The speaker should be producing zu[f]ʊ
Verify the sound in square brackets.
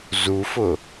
correct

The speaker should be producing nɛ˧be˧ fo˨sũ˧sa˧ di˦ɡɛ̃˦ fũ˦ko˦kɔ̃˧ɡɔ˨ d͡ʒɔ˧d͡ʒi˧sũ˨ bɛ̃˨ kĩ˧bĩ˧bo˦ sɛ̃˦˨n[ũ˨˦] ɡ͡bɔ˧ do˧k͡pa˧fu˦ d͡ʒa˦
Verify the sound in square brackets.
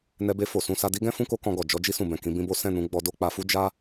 correct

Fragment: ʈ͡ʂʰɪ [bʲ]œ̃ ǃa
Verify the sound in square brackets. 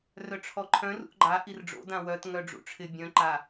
correct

